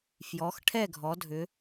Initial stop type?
aspirated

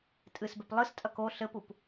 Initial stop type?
ejective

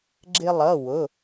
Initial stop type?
click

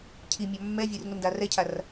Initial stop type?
aspirated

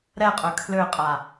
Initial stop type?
ejective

